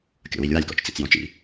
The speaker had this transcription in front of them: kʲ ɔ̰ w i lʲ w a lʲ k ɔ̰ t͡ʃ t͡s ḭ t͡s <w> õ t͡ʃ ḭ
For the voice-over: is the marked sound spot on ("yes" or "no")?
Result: no